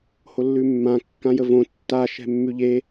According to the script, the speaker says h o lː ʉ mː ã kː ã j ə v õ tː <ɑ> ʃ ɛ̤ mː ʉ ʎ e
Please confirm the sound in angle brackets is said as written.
no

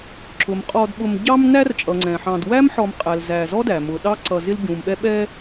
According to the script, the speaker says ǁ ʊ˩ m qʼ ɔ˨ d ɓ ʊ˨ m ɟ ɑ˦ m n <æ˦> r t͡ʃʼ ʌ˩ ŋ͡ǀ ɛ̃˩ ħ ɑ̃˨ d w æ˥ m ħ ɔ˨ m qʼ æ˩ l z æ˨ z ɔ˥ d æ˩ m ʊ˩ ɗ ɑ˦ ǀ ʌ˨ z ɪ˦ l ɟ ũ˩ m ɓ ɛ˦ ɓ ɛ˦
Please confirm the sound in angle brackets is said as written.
yes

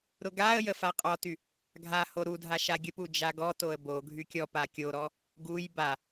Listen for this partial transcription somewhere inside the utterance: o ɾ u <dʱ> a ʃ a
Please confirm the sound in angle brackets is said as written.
yes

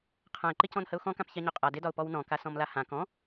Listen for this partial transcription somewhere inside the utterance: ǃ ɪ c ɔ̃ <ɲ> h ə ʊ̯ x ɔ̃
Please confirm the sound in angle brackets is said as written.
no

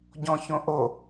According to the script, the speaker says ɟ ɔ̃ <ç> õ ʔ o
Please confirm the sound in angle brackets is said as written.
yes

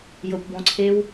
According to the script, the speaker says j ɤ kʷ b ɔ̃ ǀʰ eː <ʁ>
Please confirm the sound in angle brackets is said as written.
no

